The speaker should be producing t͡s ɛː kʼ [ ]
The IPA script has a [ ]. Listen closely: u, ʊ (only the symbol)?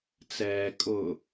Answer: ʊ